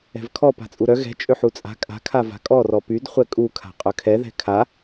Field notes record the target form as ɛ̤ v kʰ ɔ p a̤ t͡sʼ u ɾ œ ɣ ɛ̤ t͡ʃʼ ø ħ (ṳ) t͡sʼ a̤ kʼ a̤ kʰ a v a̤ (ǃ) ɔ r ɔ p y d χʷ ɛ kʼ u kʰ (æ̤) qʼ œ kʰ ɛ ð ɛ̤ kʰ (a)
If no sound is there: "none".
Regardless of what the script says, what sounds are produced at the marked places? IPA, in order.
u, kʼ, a̤, a

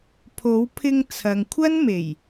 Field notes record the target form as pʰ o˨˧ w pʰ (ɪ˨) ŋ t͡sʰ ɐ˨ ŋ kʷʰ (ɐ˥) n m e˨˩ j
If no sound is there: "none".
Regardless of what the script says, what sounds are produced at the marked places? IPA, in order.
ɪ˧, ɐ˥

